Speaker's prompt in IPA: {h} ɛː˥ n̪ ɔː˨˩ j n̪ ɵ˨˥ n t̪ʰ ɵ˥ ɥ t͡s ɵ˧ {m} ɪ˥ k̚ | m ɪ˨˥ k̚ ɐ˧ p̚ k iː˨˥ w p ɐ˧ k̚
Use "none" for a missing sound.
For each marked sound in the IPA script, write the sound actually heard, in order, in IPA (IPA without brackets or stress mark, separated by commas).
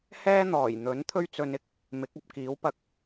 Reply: h, n